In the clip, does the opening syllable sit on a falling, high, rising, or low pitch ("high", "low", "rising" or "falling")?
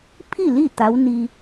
falling